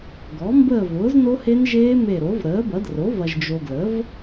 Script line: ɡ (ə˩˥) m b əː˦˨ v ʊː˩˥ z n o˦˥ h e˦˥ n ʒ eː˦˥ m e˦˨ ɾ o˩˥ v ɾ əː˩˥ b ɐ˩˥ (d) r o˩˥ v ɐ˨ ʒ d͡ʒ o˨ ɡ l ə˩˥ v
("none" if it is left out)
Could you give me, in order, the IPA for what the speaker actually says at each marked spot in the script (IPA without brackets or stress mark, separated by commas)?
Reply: ɔ˩˥, d